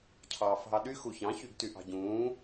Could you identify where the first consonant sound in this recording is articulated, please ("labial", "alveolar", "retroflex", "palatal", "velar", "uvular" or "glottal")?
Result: palatal